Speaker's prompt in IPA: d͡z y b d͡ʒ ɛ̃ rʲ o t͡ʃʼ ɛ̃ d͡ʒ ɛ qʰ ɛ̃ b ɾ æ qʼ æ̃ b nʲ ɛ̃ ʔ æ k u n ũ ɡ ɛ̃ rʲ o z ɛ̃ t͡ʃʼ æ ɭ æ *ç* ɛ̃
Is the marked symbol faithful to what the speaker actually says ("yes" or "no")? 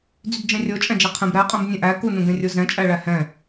no